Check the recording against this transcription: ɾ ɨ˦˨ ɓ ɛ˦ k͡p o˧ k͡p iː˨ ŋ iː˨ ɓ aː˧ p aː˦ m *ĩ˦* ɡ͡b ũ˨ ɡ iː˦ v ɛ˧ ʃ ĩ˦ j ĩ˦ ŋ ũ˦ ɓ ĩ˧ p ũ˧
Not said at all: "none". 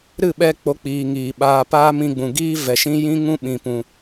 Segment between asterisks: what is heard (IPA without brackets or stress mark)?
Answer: ĩ˧